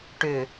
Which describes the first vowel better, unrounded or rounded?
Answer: rounded